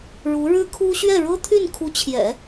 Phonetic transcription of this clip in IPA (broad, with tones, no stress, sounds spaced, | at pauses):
ɻ u˧˥ ɻ ɻ̩˥ kʰ u˥ ɕ ɥ ɛ˥˩ ɻ ɤ˥ t̪ʰ y˥˩ n kʰ u˧˥ t͡ɕʰ j ɛ̰˨˩˦